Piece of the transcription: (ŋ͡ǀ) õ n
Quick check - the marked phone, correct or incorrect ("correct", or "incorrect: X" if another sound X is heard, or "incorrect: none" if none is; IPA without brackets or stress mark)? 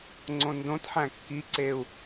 correct